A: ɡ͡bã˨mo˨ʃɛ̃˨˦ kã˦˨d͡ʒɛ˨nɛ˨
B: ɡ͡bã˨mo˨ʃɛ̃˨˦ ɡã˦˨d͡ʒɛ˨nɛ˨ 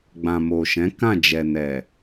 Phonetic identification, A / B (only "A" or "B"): A